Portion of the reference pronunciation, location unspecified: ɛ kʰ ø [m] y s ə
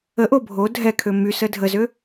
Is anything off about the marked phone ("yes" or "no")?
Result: no